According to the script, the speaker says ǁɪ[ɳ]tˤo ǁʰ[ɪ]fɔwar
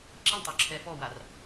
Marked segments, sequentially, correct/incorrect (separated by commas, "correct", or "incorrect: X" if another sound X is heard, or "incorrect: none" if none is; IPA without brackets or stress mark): correct, incorrect: ɛ